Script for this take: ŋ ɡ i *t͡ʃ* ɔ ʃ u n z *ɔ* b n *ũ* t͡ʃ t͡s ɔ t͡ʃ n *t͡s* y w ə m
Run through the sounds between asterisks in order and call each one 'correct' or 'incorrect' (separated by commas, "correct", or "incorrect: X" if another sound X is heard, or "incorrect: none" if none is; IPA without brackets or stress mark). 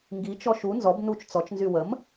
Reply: correct, correct, incorrect: u, incorrect: z